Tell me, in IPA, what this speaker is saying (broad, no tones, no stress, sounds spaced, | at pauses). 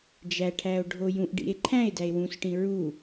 d͡ʒ æ ʈʰ æ o̯ ɖʱ o j ũ ʔ ɖ ḭ e̯ ǃʰ æ̃ e̯ d æ e̯ w ũ s ʈ ĩ ɹ u